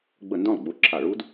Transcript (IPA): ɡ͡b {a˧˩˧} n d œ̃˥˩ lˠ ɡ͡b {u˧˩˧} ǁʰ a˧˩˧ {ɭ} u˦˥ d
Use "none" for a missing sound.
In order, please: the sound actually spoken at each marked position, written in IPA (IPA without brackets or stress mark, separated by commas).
ə˧˩˧, u˧˩˧, ɭ